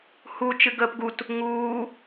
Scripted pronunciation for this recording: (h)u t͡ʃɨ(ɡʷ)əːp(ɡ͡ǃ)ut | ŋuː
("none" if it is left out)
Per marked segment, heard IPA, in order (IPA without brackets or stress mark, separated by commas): h, ɡ, ɡ